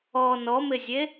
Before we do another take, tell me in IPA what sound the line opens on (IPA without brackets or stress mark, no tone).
ɔ